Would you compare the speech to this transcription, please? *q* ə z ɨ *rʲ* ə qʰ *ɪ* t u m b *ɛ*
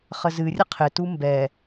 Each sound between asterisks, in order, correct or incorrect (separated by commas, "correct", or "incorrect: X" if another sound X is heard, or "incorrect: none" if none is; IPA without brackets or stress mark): incorrect: χ, correct, correct, correct